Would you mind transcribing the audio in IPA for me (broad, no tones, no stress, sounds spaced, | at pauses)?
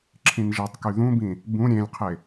ǁʰ ĩ n ʒ e tˤ k y ð ũ b ĩ | b ũ ɾʲ ẽ lʲ qʰ e